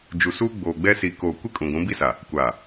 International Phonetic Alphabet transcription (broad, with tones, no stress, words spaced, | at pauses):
d͡ʒu˨suː˦ɡ͡boː˨ɡ͡bɛ˦ si˨koː˨kʷɪ˦ kʼũ˨ɡʷũ˨˦bi˦sa˨ | kʷa˨